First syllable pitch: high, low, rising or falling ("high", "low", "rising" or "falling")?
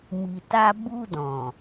low